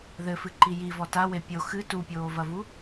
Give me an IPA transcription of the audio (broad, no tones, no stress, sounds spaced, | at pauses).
ð ɘ f ɨ ǃ i j i v ɔ t a w e pʲ o x ɨ t u pʲ oː v ɐ v u